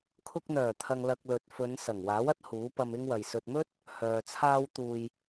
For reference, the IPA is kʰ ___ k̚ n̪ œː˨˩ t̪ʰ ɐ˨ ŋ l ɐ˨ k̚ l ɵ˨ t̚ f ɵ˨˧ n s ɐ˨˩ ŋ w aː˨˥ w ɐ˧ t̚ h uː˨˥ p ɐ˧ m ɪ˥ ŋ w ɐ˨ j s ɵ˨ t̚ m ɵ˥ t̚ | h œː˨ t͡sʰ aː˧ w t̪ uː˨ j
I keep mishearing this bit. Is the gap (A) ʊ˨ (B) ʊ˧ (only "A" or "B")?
B